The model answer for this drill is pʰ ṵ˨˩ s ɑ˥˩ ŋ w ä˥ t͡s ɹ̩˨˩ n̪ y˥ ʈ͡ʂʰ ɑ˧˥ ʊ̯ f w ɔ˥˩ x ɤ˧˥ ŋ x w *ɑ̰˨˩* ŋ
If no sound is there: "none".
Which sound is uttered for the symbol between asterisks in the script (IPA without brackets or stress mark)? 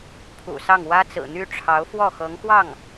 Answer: ɑ˥˩